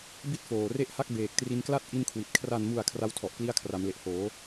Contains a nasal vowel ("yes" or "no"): no